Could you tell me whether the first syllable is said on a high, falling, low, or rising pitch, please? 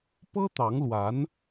high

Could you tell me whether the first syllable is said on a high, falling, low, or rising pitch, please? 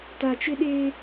low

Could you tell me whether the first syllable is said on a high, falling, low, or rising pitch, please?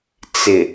low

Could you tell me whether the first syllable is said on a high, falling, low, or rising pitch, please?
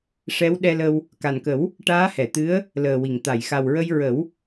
rising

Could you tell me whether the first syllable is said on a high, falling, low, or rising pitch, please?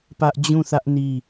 high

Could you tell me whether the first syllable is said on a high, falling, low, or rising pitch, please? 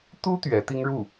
high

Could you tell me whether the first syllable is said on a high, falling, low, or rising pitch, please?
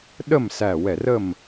falling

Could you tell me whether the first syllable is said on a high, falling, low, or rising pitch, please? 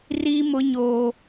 high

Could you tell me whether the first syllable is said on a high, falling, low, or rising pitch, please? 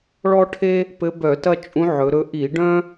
high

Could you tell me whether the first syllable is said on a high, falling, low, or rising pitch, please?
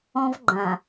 high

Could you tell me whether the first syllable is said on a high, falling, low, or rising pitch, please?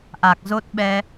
low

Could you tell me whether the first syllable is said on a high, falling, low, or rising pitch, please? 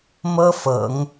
high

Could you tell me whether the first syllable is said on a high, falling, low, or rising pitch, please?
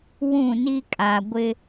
falling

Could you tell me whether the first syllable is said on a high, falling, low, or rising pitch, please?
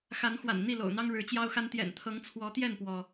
rising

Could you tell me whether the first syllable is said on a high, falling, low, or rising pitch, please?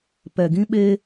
low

